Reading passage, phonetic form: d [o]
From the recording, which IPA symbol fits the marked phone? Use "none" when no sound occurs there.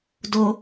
o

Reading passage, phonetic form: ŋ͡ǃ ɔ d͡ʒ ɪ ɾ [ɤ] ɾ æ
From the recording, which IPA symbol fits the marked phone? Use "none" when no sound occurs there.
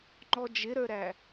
ə˞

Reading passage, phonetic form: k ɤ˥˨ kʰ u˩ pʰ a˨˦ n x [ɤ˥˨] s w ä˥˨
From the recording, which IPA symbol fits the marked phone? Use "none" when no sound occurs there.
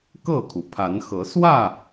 ɤ˨˦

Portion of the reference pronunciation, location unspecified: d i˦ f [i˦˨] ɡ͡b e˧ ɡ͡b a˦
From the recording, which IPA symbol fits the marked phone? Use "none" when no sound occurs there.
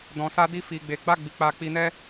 i˧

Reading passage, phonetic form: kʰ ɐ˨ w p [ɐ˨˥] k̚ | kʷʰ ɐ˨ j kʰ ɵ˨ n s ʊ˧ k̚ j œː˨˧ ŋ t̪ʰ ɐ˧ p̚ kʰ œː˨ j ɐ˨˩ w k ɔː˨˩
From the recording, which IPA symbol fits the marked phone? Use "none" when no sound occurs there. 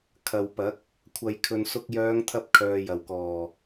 ɐ˨˥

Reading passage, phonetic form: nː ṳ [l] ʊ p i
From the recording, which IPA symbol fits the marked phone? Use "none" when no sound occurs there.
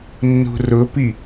r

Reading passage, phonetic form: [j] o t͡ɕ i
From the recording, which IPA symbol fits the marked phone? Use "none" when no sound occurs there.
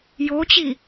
j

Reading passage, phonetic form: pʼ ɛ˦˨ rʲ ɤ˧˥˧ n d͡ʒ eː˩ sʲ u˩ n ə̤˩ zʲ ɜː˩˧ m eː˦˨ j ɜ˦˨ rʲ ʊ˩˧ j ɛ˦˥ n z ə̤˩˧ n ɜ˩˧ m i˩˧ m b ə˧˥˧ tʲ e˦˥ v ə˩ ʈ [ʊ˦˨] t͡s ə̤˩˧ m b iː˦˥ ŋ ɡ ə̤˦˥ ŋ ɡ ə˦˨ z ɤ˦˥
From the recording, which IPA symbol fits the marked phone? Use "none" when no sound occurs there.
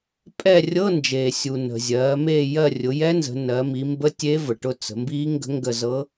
ʊ˦˨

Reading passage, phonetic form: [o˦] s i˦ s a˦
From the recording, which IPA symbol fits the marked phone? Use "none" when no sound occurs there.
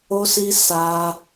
o˦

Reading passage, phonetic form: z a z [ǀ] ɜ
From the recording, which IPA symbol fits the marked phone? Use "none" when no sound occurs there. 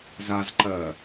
ǃ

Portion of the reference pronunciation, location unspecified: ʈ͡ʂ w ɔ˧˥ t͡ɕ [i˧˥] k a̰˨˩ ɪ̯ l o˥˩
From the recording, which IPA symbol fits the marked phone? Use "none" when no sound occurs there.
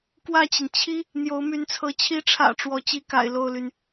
i˧˥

